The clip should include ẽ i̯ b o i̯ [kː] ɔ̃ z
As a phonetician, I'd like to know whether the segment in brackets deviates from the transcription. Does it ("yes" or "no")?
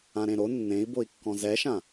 no